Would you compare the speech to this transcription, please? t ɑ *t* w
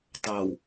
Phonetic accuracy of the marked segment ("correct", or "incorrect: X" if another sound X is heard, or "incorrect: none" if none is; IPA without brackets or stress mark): incorrect: none